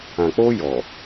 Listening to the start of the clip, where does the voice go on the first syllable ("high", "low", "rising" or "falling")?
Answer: low